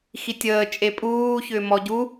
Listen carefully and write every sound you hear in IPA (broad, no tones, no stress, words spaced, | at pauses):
xitʲəː t͡ʃʼepʼuː çʏːmɔɟu